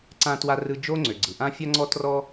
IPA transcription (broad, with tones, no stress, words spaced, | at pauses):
ǀã˧twa˧rɯ˧ d͡ʒo˦ŋ͡ǀø˨ɡ͡ǀɯ˨ ʔã˦ fʲa˦ŋ͡ǀɔ˦ trɔ˦